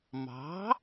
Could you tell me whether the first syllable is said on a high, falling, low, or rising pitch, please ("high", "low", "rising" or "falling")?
rising